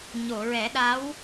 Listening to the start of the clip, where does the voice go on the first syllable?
low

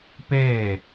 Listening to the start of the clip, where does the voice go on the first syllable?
falling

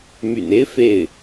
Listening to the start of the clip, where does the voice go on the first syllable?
low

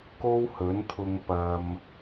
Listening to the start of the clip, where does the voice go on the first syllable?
high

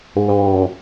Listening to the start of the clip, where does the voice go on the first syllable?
low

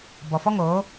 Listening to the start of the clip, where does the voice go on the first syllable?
low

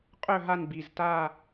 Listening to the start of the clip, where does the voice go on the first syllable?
falling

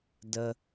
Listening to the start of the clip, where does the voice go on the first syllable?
high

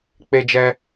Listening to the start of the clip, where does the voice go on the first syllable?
high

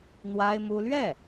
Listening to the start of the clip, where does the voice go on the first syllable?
high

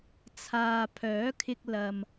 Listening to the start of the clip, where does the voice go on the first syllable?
low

